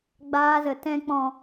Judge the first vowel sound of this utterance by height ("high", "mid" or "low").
low